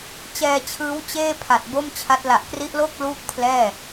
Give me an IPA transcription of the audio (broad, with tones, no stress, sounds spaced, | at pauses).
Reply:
t͡ɕ ɛː˧ t͡ɕʰ ɯː˦˥ w t͡ɕ eː˥˩ pʰ a˨˩ t̚ b o˥˩ m t͡ɕʰ a˦˥ t̚ l a˨˩ ʔ k r i˦˥ ʔ l o˥˩ k̚ l uː˥˩ k̚ pʰ l ɛː˥˩